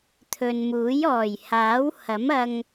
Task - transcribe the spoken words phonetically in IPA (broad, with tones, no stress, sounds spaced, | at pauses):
t̪ʰ ɵ˨ n m uː˨˥ j ɔː˨˩ j h aː˨˥ w h ɐ˨˥ m ɐ˧ ŋ